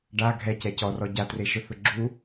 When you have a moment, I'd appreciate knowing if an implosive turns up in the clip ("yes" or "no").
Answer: no